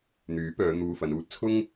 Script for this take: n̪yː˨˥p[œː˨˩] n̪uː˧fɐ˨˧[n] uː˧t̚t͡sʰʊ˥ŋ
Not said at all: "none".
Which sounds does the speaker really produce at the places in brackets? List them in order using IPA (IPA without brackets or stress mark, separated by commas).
œː˨˧, n